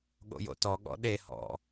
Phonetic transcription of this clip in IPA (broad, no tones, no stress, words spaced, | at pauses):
ɠo̰jo̰tɔ ɠɔ̰ɗe hɔ̰